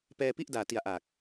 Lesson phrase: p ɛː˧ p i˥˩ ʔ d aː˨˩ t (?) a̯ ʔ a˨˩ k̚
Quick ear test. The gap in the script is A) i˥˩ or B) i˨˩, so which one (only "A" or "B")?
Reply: B